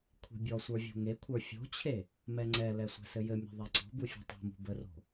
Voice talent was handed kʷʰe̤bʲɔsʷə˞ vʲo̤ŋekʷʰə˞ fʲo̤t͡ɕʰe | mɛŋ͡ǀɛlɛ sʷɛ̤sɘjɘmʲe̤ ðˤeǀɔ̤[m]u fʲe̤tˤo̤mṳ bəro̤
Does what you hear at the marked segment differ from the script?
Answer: yes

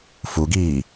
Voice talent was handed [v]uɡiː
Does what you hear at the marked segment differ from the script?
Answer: yes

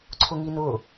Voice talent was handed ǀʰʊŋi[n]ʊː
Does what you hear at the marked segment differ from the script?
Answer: no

